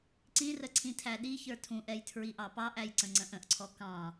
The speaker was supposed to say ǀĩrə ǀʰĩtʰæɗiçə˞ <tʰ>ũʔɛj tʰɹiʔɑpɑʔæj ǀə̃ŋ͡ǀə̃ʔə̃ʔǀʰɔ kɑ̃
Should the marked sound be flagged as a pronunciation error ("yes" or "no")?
no